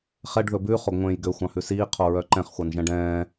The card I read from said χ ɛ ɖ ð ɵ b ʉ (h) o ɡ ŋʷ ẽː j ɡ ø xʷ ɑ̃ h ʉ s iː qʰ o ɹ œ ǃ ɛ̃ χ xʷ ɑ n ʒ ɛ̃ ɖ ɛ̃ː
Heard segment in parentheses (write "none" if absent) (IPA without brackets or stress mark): χ